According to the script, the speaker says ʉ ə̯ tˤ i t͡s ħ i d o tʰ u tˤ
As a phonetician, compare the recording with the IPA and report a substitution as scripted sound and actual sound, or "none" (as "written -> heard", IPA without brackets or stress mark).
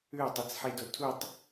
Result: none